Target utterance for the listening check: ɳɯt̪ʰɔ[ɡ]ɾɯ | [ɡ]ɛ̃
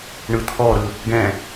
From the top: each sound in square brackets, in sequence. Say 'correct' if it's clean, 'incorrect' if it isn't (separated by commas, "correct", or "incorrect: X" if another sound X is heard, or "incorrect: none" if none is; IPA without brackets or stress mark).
incorrect: none, correct